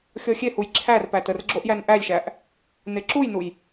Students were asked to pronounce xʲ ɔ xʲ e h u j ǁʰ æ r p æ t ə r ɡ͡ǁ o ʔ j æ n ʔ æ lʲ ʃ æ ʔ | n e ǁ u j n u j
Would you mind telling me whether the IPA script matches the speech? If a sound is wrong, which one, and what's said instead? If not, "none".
none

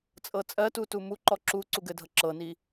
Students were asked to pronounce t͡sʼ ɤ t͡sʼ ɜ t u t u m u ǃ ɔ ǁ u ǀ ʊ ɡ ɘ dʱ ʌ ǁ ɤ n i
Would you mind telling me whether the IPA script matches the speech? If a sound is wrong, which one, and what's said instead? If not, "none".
ʊ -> u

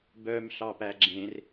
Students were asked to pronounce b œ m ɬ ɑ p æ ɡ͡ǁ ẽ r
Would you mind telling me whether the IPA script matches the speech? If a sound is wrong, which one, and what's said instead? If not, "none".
none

